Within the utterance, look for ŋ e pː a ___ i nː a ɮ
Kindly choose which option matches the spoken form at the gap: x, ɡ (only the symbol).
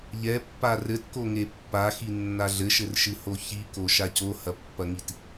x